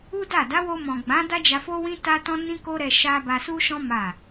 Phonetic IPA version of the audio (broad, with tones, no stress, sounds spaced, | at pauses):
u˦ d a˦˨ d a˨˦ w o˧ m ɔ̃˨ ɡ͡b ã˨˦ d a˦ d͡ʒ a˧ f o˦ w ĩ˦ t a˦ t ɔ̃˦ n ĩ˦ k o˦ ɾ ɛ˧ ʃ a˦ b a˧ s u˦ ʃ ɔ̃˦ m a˦˨